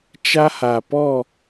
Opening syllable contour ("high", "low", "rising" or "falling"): high